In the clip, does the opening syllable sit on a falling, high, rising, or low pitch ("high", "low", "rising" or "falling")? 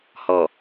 low